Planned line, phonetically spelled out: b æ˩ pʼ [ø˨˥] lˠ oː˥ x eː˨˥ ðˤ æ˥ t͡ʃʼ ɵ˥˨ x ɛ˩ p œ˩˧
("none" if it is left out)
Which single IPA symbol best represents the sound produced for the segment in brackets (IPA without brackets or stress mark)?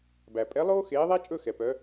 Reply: ɛ˨˥